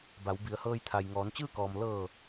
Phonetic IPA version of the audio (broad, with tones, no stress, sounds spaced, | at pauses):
b a˩˧ w b i˩˧ ə̯ h ɤː˧ j t̪ʰ a˩ j ŋ ɔː˩˧ n t͡ɕ ɯː˥˨ k ɔː˩ m l ɤː˧˩